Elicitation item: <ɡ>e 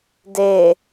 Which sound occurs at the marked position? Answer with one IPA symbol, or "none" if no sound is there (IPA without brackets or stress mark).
d